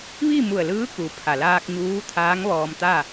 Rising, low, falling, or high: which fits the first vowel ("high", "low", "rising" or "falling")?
falling